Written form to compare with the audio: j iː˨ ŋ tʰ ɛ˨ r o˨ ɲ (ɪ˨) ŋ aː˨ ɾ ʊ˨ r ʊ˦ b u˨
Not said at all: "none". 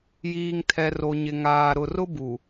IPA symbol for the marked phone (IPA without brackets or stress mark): ɪ˨